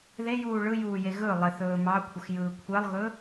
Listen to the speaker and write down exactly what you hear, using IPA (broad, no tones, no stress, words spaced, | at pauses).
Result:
ðejuː ɭɯjuːje ɣɵ lˠɪθɵː mɑkʷʰəxjɯː kʷʰɛlˠɣɵ